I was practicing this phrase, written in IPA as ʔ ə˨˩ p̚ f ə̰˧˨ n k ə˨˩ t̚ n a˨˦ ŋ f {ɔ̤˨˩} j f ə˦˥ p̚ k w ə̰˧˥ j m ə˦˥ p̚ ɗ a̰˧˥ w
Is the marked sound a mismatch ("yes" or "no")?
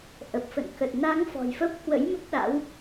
no